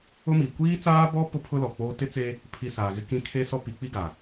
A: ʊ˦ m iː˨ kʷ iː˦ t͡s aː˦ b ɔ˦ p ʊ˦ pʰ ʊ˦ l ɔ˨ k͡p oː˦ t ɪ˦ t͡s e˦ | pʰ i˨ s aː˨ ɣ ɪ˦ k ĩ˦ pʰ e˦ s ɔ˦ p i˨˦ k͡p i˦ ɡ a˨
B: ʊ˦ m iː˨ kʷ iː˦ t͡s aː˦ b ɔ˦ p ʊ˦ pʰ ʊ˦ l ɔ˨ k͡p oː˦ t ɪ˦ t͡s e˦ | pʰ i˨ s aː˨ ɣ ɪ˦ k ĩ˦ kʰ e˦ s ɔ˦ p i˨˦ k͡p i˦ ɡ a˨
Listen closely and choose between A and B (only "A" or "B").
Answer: B